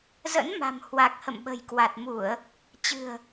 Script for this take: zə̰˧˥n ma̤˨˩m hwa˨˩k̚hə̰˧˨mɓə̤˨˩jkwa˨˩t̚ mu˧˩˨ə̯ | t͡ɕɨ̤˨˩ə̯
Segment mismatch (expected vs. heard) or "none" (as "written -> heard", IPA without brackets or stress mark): none